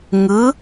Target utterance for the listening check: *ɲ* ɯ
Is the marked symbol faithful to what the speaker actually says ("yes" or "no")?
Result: no